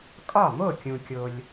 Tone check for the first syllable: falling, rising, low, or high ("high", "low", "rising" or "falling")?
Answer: falling